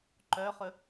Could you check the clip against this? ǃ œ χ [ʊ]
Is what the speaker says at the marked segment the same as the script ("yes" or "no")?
no